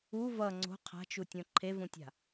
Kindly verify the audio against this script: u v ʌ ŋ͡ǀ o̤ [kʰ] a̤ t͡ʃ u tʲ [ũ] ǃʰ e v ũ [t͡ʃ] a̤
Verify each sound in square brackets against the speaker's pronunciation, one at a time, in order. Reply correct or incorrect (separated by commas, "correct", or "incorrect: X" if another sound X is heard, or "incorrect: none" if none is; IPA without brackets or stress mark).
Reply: incorrect: qʰ, incorrect: õ, incorrect: tʲ